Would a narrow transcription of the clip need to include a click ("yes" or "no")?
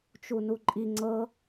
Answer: yes